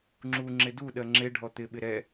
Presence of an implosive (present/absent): present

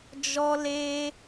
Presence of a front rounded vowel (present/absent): absent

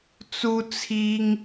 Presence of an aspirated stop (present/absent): present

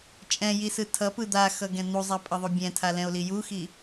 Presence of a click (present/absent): absent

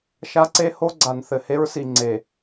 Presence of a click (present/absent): present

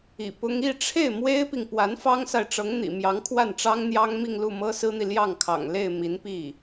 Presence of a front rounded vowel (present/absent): absent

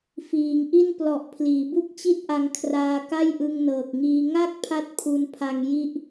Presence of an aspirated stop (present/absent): present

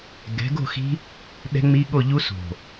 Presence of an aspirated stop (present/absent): absent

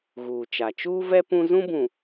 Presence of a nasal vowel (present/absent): present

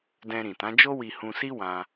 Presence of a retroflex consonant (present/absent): absent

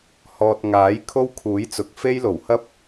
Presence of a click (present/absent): absent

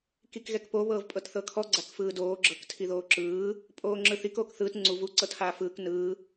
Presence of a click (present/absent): present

